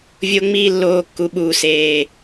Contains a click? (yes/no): no